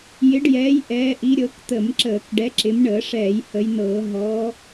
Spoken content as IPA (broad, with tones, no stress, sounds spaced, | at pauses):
j ɪ˨˦ ɖ j ɛː˨˦ j ʔ ɛː˨˦ ʔ i˨˦ ɾʲ ɤ˨˦ k t̪ ə˧˩˧ m ǁ əː˧˩˧ k ɖ ɛ˨˦ ǁ ɪ˨˦ m ɳ əː˧˩˧ ʂ ɛː˧˩˧ j h ə˨˦ j n ɤː˧˩˧ ɦ ɔ˨˦